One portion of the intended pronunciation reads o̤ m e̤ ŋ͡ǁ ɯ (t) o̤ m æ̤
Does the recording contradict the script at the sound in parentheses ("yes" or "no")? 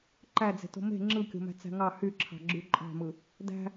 yes